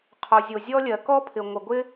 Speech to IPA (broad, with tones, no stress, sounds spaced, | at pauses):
qʰ o˩ zʲ o˩ zʲ ɔ˥ lʲ ɜ˩ k ɔ˥ pʰ ɪ˩ ŋʷ ə˩ ɡʷ ɪ˥